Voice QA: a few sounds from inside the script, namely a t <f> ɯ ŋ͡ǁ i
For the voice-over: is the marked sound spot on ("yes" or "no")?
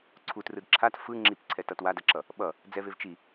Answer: yes